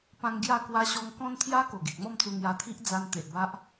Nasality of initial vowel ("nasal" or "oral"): nasal